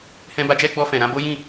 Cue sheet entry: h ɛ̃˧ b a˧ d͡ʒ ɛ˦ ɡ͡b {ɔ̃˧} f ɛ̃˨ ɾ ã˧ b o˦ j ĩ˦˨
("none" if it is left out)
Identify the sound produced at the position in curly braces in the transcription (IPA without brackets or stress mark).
ɔ˧